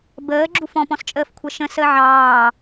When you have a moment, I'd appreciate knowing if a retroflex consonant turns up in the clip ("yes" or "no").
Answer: no